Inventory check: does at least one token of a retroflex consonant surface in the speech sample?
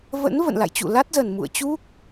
no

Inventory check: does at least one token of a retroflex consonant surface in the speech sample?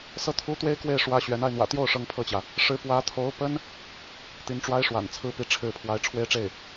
yes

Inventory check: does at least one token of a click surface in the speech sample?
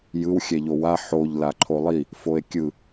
yes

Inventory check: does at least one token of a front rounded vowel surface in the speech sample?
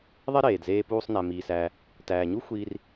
no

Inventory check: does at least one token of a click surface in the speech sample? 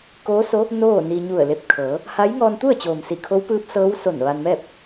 no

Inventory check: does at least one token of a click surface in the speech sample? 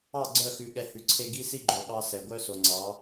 yes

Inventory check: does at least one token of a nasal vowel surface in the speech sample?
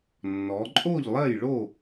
no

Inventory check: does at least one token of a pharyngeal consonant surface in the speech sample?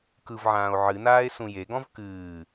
yes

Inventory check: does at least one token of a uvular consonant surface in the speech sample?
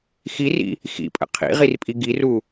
yes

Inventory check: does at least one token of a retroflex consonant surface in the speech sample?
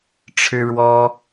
yes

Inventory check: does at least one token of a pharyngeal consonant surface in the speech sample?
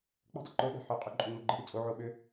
yes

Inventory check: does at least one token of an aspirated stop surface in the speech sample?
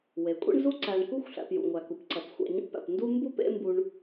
no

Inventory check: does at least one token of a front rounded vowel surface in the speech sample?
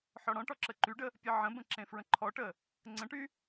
yes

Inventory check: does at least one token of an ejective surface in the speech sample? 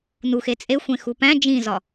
yes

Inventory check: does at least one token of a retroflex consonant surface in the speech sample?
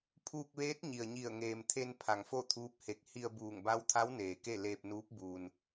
no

